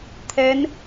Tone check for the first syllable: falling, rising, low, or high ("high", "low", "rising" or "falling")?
rising